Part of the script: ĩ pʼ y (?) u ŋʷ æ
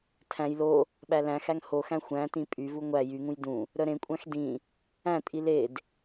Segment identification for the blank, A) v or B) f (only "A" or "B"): A